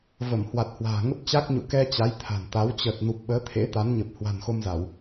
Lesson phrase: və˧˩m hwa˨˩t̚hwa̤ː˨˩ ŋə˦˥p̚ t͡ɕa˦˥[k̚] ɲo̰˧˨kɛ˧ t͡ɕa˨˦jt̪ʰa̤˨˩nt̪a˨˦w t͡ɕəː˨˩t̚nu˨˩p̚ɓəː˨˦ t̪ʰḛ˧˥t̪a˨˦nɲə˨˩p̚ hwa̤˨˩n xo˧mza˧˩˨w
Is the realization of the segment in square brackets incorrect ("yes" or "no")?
no